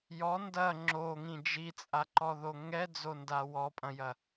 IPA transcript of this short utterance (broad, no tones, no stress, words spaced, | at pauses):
jɔ ndɐ ŋ͡ǁoŋĩ d͡ʒit͡sʼaǃɔðo ŋɛd͡zonda wɔpʼɐ̃jɐ